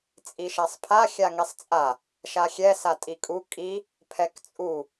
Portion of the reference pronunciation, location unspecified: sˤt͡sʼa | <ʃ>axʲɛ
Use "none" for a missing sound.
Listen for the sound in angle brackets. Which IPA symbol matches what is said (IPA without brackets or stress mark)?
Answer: ʃ